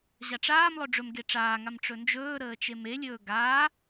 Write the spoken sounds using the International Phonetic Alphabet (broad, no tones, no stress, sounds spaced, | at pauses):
ʑ a ʈ͡ʂ aː m lˠ ɵ ɖ͡ʐ ɵ m ɡ e ʈ͡ʂ aː ŋ a m ʈ͡ʂ ɵ n d͡ʒ ɵː ɾ əː t͡ʃ e m e lʲ ɵː ɡ aː